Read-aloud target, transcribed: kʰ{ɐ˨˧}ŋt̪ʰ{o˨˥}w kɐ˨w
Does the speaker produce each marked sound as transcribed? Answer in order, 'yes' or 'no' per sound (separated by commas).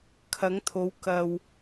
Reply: yes, no